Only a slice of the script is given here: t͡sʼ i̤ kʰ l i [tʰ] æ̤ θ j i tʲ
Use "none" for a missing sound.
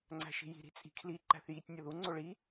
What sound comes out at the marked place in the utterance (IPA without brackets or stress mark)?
ǃ